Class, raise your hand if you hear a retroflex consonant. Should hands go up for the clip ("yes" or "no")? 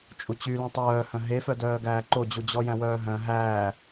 no